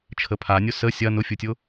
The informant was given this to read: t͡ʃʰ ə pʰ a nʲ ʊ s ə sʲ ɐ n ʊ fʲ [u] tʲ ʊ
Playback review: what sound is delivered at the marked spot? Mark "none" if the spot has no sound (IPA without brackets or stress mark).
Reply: u